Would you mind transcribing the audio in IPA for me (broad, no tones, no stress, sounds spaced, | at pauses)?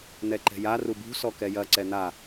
n̪ ɛ ǃ ɛ̤ j a r u b ṳ s ɔ k ɛ j ɐ ǀ ɛ n̪ a